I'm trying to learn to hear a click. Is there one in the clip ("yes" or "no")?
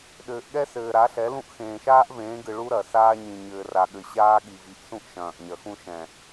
no